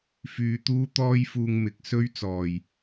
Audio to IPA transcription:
f yː˧ t̪ uː˥ t̪ ɔː˥ j f uː˧ ŋ m ɪ˨ k̚ s ɵ˥ ɥ t͡s ɔː˨˩ j

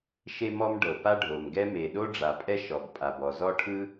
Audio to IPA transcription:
ʃ e˥ m ɔ˥ m ɖ ɤ˩ p a˥ ɖʱ o˩ m ɡ ɛ˥ m e˩ ɗ o˥ ɖ͡ʐ a˩ pʼ ɛ˥ ʃ ɔ˩ ɡ pʼ a˩ b ɔ˩ z ɔ˥ ʈʰ ɯ˥

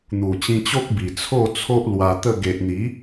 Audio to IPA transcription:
n̪ u˨˩ t͡ɕ ĩ˧ t͡ɕ o˦ k̚ b i˨˩ t͡sʰ o˥˧ t͡sʰ o˦ ʔ l w a˧ t̪ ə˥˧ ɡ e˨ ʔ n̪ i˨˦

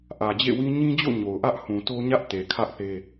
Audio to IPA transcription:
ʔ ä˨ d͡ʑ ḛ˦˨ w ĩ˦ ɲ ĩ˦ d͡ʑ o̰˦˨ ɲ o˨ ʊ̯ ʔ ä˦ ʔ h ũ˨ t o˦ ɲ ä˦ ʔ t e˨ kʰ ä˦ ʔ θ e˦

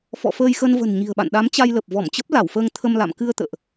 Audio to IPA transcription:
f ɔ̰˧˨ f əː˧ j x ə˧ n v ə̤˨˩ n ɲ i̤˨˩ ə̯ ɓ a̰˧˨ n ɗ a˨˦ m t͡ɕ a˧ j l ə˨˩ p̚ v ɔ˧˩ m t͡ɕ ə˦˥ p̚ l a˧˩ w f əː˧ ŋ t̪ʰ ə˧ m l a̰˧˨ m k ɨ˧ ə̯ t̪ ə̰ː˧˨ ʔ

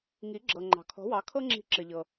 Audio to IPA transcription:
ŋ i˩˥ ɡ͡ǁ ɤ˩ ŋ͡ǃ ɑ̤˩ kʰ ɔ̤˩˥ w ɑ˩˥ kʰ ɤ˥ ŋ͡ǁ i̤˧ ǁ ɘ˩ ʎ ɤ˩

